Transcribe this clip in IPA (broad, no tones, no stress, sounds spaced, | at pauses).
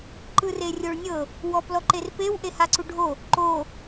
ǃ ɯ r e rʲ o ɭ nʲ ɤ | w ɔ p l ɔ ǃ e r p e w ʔ e h a ǀ u ɖʱ o | ǃ o